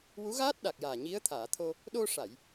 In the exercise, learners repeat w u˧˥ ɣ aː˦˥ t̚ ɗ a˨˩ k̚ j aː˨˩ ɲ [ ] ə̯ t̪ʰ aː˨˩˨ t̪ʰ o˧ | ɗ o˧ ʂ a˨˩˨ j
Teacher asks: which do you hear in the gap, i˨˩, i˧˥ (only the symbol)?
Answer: i˧˥